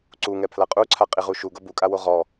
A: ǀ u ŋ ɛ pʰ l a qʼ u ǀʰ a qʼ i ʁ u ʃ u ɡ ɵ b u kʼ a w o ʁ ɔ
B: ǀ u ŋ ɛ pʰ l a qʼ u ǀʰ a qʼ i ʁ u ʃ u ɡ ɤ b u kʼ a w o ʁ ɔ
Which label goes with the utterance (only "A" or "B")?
B